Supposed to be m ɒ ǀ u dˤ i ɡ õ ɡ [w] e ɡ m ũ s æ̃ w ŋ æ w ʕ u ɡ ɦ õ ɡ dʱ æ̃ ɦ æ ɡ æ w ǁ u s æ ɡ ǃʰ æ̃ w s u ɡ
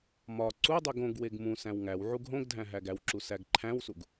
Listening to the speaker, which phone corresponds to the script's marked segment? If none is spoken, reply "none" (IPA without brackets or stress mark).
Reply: w